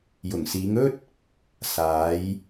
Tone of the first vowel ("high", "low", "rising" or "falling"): low